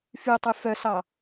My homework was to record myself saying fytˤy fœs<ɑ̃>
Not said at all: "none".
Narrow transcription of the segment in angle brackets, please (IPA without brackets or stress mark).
ɑ